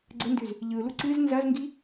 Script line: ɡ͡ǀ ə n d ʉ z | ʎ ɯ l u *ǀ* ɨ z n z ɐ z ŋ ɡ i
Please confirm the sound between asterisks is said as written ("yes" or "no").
yes